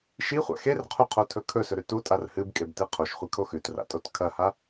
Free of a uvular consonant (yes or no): no